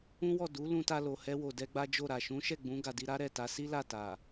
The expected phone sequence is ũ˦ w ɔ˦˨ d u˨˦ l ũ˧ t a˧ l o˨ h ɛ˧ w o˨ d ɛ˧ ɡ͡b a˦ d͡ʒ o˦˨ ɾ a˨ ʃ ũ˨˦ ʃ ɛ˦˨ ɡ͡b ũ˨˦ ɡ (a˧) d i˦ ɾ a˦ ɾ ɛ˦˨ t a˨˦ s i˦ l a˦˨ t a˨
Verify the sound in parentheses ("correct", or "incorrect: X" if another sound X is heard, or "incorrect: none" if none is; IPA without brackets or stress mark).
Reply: correct